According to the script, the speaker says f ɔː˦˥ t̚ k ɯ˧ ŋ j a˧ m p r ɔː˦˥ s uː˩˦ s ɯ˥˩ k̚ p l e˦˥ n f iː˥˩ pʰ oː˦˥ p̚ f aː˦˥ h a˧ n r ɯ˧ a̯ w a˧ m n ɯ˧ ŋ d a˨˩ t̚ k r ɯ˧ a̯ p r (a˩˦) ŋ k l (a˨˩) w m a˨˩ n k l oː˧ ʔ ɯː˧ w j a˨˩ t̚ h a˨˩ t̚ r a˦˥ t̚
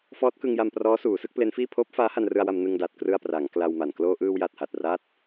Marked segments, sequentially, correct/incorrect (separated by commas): correct, incorrect